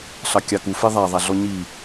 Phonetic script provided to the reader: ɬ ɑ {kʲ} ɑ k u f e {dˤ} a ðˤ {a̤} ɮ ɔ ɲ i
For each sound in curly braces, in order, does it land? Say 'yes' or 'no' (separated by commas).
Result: yes, no, no